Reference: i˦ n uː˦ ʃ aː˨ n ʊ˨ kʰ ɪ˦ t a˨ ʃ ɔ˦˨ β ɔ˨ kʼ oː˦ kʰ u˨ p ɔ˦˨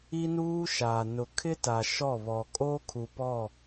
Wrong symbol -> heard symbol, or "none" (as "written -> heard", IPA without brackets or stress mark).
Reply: none